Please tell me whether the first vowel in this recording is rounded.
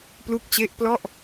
yes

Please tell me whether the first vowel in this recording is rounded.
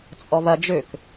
yes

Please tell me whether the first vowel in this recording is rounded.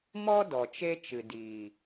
yes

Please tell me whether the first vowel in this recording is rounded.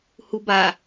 yes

